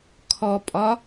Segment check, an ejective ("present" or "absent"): present